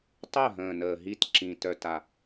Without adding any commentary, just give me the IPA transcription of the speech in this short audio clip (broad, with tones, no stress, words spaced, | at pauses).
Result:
tˤœ˥˨ɦə̃ː˨˩ nəː˨˩ɦi˥˨tǁĩ˨˩ tœ˥˨ta˥˨